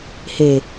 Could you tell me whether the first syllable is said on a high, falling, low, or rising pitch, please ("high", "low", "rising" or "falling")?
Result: low